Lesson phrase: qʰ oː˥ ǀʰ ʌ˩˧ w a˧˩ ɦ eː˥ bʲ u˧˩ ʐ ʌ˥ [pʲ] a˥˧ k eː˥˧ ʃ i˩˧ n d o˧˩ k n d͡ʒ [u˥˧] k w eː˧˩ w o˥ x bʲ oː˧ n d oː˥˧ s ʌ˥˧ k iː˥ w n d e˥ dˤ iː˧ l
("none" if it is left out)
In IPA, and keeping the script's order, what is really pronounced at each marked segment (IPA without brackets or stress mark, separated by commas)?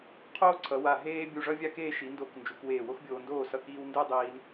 vʲ, u˩˧